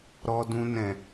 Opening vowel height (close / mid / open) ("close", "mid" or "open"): mid